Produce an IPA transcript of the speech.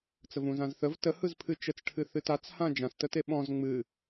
t͡s ə v ũ z ã z θ ə v t ə h ɯ z pʰ ɨ t͡ʃ ə t͡s ʈʰ ɨ θ ɨ t a t͡s h ã d͡ʒ ã s t ə t e ɓ ɔ̃ z ŋ͡m ɨ

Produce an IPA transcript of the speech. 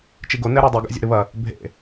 t͡ʃ i ɡ o n ɛ ɾ ɛ dˤ i ɡ a̰ zʲ o̰ ɾ ɨ β ɐ | bʱ ḛ

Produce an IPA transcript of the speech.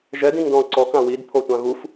ʒ ɛ d ĩ ŋ d ɔ̃ o̯ ǀ ɔ k ã w i d pʰ o tʷ ã ɣ u f

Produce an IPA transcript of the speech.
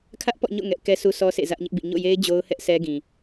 kʰ ä˦ ʔ p ɔ̰˦˨ ɲ o̰˦˨ ŋ ɛ˦ ʔ k ɛ˦ sʰ u˦ sʰ ɔ˦ sʰ ḛ˦˨ z ä˦ ʔ ɲ ɪ˦ ʔ b ḭ˦˨ ɲ o̰˦˨ j e˦ ɪ̯ d͡ʑ o˦ ʊ̯ h ɛ˦ ʔ sʰ ɛ˦ ɡ ĩ˨

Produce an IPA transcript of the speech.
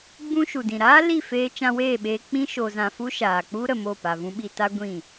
ɡ͡b ũ˦ ʃ u˨ d ĩ˨ ɾ aː˦ l i˦˨ f eː˧ t͡ʃ ã˧ w eː˦˨ ɓ eː˧ k͡p ĩ˦ ʃ o˧ z ã˧ f u˦ ʃ aː˨ k͡p u˦ ɾ ə˨ m o˦˨ p a˨ v ũ˧ ɓ i˧ t a˦ ɡʷ ĩ˦˨

